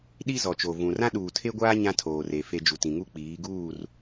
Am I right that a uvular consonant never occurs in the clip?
yes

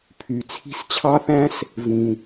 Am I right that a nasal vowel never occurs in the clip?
no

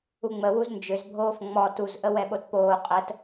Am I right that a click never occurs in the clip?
yes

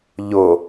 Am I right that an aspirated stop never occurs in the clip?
yes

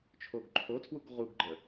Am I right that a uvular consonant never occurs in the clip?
no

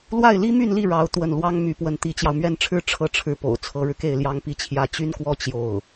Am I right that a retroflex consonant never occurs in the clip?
no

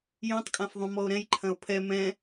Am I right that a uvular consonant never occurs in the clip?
yes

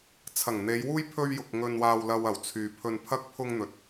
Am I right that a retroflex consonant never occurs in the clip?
yes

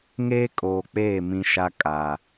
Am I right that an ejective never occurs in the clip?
no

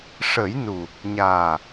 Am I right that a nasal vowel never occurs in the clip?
yes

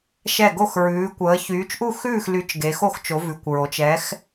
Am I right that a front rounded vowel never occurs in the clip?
no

